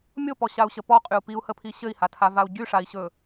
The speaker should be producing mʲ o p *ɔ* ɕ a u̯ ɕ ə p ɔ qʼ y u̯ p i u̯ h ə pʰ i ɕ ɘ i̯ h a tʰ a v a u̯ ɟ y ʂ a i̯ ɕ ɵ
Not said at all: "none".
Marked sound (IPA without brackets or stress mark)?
ɔ